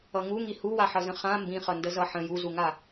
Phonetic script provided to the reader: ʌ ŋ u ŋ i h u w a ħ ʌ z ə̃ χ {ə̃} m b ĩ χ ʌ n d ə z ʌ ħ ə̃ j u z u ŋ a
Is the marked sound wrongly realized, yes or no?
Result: yes